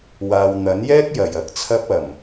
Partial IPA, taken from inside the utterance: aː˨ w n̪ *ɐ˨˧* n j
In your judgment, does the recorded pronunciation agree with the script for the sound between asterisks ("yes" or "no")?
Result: no